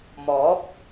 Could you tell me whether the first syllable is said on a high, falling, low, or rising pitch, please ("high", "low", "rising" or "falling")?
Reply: rising